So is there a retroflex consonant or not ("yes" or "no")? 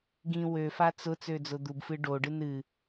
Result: yes